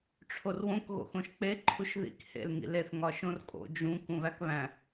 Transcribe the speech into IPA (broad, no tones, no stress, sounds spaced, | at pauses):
ʈ͡ʂʰ o r w õ k ɣ o̰ x õ ʃ k͡p e ǃʰ u ʃ ð ḭ k h ḛ l ŋ ḭ l e θ ŋ ɒ ʃ õ r kʼ o̰ d͡ʒ ũ k ũ β æ k β æ̃